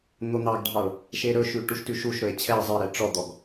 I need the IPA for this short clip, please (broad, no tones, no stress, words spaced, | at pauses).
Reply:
n̪on̪ɑɡɖʱɑɭ | ʃeɾɵʃʉ ʈuʃtʉʃuʃɾɵe̯ t͡ɕʰɛe̯ zˤeɾɛ ʈ͡ʂɔd̪ɔɡ